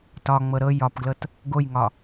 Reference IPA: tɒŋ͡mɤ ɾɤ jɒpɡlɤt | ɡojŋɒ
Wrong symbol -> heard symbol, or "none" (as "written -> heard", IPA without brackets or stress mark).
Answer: none